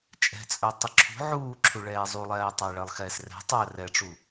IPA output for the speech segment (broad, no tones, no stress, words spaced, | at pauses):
t͡ʃʼɛ̤t͡sʼœ tˤɨǁʰṳ ʕuːǁʰu ɭɛːzˤulˠɛː tˤaɭɜlˠxɛːsrɛ̤ tˤɜ rɛʈ͡ʂu